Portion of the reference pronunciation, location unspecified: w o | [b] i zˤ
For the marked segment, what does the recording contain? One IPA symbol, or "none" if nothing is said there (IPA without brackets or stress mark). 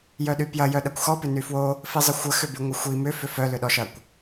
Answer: f